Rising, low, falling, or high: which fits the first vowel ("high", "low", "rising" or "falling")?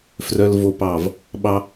high